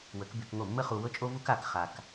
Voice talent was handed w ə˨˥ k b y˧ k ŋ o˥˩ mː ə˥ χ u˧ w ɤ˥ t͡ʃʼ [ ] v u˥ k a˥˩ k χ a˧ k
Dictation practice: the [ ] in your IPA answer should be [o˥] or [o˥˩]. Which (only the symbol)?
o˥